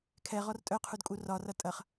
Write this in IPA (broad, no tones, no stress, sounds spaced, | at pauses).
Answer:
kʰ ɛ ʁ ɔ r tʼ œ qʰ u d kʼ u r ɒ r ʌ tʼ ɐ χ